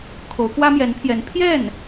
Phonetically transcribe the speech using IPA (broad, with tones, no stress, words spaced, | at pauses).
kʰo˧˥ʊ̯kwä˥mjɛ˧˥nt̪ʰjɛ˧˥n pʰjɛ˥˩n